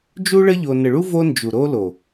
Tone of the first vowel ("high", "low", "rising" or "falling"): high